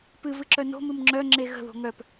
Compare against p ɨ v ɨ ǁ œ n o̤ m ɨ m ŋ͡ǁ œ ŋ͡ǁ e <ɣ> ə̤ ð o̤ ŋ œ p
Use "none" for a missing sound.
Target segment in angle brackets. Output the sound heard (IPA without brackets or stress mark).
ɣ